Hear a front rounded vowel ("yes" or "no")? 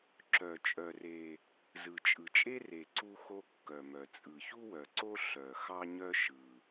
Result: yes